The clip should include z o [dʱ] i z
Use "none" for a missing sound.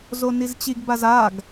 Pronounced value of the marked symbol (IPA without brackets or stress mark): n